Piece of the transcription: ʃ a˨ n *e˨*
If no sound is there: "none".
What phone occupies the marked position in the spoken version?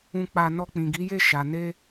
e˧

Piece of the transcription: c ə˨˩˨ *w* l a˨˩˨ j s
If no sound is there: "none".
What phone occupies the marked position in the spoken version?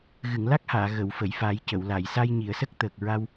w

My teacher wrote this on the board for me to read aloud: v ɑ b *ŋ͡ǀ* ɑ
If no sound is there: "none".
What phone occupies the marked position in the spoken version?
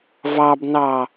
n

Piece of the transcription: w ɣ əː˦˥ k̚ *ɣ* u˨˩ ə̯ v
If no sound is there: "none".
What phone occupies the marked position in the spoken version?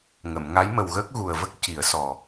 ɣ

